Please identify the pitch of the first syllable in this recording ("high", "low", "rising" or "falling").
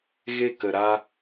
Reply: high